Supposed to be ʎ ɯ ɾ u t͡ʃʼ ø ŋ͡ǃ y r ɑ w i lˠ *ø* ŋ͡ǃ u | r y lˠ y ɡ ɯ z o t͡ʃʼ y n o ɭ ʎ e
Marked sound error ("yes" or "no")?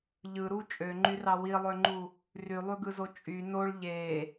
no